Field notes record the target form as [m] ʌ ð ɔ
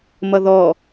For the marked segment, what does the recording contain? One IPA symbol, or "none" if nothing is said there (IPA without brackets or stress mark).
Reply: m